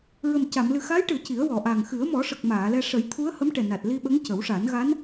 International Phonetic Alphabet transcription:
ɹ ə˨˩ m c a˨˩˨ m l ɨ˨˩ x a˧˥ j ʈ ɨ˨˩˨ ə̯ c i˨˩˦ ə̯ w ɔ˨˩˨ ʔ a˨˩ ŋ x ɨ˨˩˦ ə̯ m ɔ˨˩˦ ʂ ə˨˩ k̚ m aː˨˩˨ l ɛ˧ ʂ ə˨˩˦ j t̪ʰ u˧˥ ə̯ h ə˧˥ m ʈ ɛ˨˩ n a˨˩ t̚ l i˧ ɓ ə˧˥ ŋ c ə˨˩˦ w ʂ a˨˩˦ n ɣ a˧˥ n

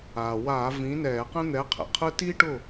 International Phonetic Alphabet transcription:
aː˩ w aː˧˩˧ v ĩ˨˥ n ɛː˧˩˧ q ɛ̃˥ n̪ ɛ˨˥ qʰ ɛ̰˩ qʰ ɯ˥ t i˥ ʈ ʊ˥˨

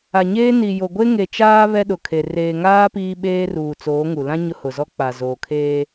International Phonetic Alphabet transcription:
a˨ ɲ eː˦ n i˨ j o˨ ɡʷ e˦ ŋ e˨ t͡ʃ aː˦ β ɛ˦ ɗ ʊ˨ kʰ e˨ r eː˨ ŋ aː˦ p iː˦ ɓ eː˦ r uː˨ t͡s oː˨˦ ŋ u˨ l ã˦ ɲ ʊ˦ h ʊ˨ z ɔ˦ k͡p a˨ z oː˨ kʰ eː˦

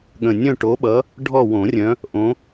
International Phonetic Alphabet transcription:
ɠ ə̃˨˩ nʲ œ̃˦˨ ʈ o˨˦ ɓ ʌ˨˦ | ɖʱ ɔ˦˨ w õ˨˩˦ rʲ œ̃˨˦ | ʔ õ˨˦

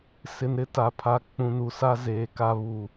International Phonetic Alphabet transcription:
s ɪ˨ n ɾ ɪ˦ t a˨ pʰ a˨ k͡p ũ˨ n u˨ s a˦ z eː˨ k a˦ β u˨

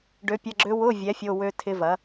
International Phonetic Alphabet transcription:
ɖ ø˨˥ pʲ ɐ˧˥˧ ɡ͡ǁ ø˦˥ w ʊ˧˥˧ vʲ ɛ˨˥ fʲ o˧˥˧ w ø˦˥ tʰ ɪ˦˥ v ɐ˨˥

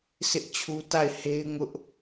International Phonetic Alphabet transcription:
sʰ ɪ˦ ʔ t͡ɕʰ u˦ t a˦˨ ɪ̯ h e˦ ɪ̯ ŋ ʊ˦ ʔ

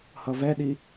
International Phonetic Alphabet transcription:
h ʌ v ɛ ɗ i

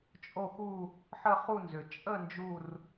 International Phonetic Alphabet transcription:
t͡ʃʼ o˥˧ x u˥˧ | ħ ə˥˧ χ u˥˧ n z ʏ˨˩ t͡ʃʼ ə˥˧ n d͡ʒ u˥˧ r

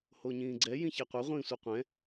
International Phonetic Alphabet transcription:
h o ɲ ĩː ɡ͡ǀ ɛ j ĩ ç e qʷ ɛ ʁʷ ĩː sʷ ɯ qʷ ɛ̃

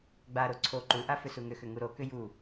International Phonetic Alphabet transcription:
ɡ͡b a ɾ o ǀʰ o ǃ u ʔ a f ʏ s u ŋ ʏ x ʏ ŋ u ɾ o k ʏ j u

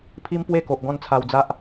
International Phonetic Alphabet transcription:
pʰ i˦ m p w e˦ k o˨ ʔ ɡ ɔ̃˦ n t͡sʰ a˧ w d͡z a˦ ʔ

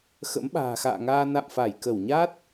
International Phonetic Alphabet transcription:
x ə̰˧˥ m ɓ a̤ː˨˩ x a̰ː˧˨ ŋ aː˧ n a̰˧˨ m f a˧˩ j k ə˧˩ w ɲ a˦˥ t̚

